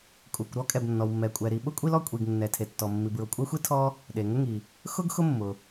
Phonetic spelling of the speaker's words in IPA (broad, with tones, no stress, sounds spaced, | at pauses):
kʼ u˩ kʷ ɾ ɔ˥ kʼ ɛ˩ b nː ɔ˩ w mː ɛ˩ kʷʼ ɛ˩ ɾ i˩ ɓ ʊ˥ kʷʼ i˥ l ɔ˥ kʷʼ i˩ ɡ nː ɛ˩ tʰ e˩ tː ɔ˩ mː i˩ b ɹ ʊ˩ kʷʼ ɛ˥ xʷ i˥ tʰ ɔ˥ | ɗ e˩ ŋ ʊ˥ ŋ i˩ | x ʊ˥ ɡ x ʊ˥ mː ʊ˩